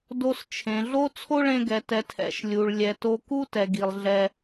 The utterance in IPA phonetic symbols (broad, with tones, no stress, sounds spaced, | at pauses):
d o˧ s t͡ʃʰ ẽ˨ ɮ o˦ t͡sʰ o˦ ɭ ẽ˧ ɡ ɛ˨ t ɛ˨ tʰ ɛ̰˨ ʃ lʲ u˨ ɭ lʲ ɛ˨ t o˧ k u˦ t ɛ˨ ɡ i˨ lˠ ɮ ɛ˧